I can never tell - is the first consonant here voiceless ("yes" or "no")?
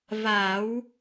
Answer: no